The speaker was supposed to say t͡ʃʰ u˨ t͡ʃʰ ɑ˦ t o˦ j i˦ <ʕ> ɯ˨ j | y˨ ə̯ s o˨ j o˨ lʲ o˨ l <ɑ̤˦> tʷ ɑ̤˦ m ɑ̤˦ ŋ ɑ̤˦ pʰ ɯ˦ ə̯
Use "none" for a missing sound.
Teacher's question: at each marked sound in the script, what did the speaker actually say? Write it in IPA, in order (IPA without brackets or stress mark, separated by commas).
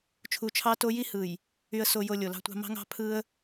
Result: h, ɑ̤˦